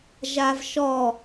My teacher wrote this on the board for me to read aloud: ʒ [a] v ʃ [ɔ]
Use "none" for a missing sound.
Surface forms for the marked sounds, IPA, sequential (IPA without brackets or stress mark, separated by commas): a, ɔ